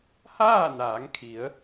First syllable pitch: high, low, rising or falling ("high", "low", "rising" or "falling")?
falling